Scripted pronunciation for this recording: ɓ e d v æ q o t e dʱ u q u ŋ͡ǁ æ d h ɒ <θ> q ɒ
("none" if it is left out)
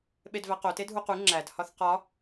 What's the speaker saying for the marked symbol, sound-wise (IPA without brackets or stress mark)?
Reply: θ